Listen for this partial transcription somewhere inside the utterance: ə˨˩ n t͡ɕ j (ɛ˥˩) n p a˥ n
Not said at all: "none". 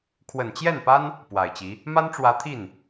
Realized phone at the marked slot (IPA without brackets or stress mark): ɛ˥˩